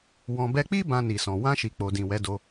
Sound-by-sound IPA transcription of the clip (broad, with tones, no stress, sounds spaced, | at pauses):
w ɔ̃˧ b ɛ˧ k͡p i˦ b ã˧ n i˨ s ɔ̃˨ w ã˧ ʃ i˨ k͡p o˨ d ĩ˨ w ɛ˨˦ d o˧